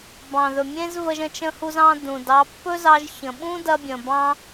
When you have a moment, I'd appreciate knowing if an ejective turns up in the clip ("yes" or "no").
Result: no